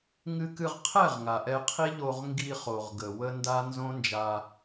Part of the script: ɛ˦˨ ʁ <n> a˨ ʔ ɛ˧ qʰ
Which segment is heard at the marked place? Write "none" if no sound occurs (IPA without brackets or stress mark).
ŋ